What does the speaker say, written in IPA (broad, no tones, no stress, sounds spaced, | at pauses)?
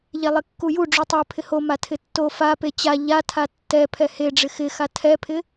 ʎ ɛ lˠ ɪ kː u j u ɖ͡ʐ u tˤ e pʰ ɪ h o m a tʰ ɪ tː o f a p e t͡ɕ a ʎ a tʰ a tː ɛ pʰ ɛ h e ɖ͡ʐ ɪ x ɪ x a tʰ ɛ pʰ ɪ